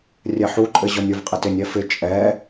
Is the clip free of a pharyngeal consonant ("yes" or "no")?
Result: no